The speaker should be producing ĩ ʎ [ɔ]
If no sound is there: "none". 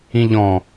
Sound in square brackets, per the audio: ɔ̃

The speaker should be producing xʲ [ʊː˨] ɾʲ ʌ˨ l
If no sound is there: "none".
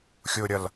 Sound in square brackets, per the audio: ʊː˨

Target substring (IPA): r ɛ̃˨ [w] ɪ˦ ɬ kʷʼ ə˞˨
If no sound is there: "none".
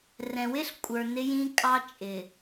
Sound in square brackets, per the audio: w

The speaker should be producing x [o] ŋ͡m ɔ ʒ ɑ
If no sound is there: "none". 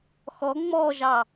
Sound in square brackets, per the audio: ɔ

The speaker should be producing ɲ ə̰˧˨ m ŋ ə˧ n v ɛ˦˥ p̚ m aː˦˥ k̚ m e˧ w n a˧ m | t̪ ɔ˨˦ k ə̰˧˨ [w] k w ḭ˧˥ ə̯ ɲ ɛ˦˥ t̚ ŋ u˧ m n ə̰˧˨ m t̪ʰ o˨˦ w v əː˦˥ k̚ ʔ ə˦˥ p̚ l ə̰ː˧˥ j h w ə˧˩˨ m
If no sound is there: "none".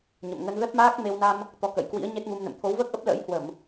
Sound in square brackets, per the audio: j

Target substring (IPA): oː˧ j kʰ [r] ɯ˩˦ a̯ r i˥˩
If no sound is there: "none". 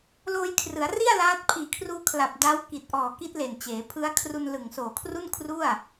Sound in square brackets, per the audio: r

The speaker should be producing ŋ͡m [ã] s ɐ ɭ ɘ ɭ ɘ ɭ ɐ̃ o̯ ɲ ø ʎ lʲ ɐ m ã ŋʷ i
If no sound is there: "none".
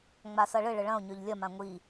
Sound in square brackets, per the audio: a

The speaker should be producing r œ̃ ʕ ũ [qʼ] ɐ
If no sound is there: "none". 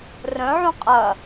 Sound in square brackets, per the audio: qʼ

